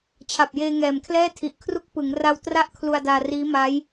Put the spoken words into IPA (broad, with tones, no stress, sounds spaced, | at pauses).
t͡ɕʰ a˨˩ p̚ j eː˧ ŋ ɛː˨˩ m kʰ l ɛː˥˩ tʰ i˨˩ ʔ kʰ r u˥˩ k̚ p ɯ˩˦ ŋ r a˧ w t r a˥˩ ʔ kʰ l u˧ a̯ d aː˧ r iː˦˥ m a˦˥ j